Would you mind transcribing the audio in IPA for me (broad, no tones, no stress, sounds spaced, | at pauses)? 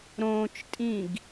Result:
ɾ õː t͡ʃ tʼ ĩ ɡ